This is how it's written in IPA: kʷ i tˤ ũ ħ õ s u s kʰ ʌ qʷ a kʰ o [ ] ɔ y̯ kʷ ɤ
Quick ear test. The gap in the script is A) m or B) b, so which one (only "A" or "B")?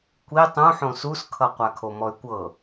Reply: A